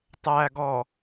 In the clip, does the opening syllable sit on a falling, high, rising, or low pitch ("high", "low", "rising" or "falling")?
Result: low